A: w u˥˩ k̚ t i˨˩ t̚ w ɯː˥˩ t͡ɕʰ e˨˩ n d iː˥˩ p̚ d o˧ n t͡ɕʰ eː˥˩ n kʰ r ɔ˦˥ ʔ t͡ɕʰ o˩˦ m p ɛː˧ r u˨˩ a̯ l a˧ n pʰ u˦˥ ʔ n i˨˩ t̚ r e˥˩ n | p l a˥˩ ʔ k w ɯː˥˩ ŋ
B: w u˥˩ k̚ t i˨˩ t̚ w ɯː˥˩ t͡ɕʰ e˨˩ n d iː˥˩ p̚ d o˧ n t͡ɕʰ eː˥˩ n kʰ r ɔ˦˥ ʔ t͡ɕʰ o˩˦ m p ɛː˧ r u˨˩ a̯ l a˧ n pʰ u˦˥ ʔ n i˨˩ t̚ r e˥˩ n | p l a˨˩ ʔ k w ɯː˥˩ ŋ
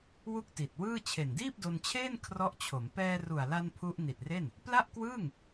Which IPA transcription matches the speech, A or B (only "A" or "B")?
A